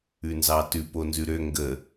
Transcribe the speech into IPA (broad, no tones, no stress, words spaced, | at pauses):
ʉnzɑtʉp onzʉɾø ŋɡə